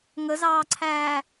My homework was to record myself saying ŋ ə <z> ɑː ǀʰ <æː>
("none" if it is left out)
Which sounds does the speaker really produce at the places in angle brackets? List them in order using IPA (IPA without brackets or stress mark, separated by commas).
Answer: z, æː